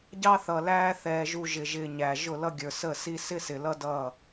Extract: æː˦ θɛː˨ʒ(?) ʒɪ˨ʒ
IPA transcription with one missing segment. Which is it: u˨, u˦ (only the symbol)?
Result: u˨